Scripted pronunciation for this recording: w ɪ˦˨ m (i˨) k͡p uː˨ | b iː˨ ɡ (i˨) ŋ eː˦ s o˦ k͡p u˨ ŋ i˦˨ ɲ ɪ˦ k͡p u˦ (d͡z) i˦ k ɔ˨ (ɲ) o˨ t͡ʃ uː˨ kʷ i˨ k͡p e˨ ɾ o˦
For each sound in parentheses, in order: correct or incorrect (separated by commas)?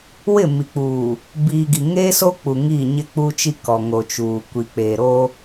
correct, correct, incorrect, incorrect